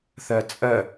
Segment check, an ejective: present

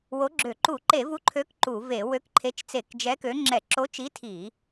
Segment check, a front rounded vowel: present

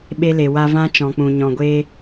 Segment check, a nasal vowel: present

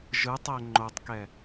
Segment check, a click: present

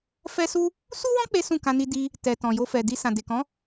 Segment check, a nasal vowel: present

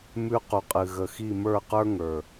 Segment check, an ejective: present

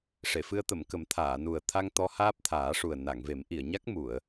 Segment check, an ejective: absent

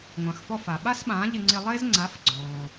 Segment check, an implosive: present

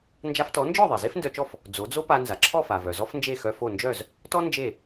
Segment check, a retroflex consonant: absent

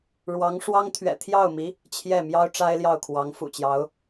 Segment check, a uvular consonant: absent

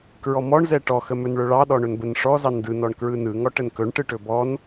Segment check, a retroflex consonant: present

